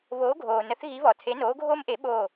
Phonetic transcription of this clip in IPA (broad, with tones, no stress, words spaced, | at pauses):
βoː˨˦ɡʱoː˩nə˨˦θ ɣi˨˦βɔ˩tʰe˨˦ noː˨˦ɡʱoː˦mʔe˨˩˦ ɓoː˧˩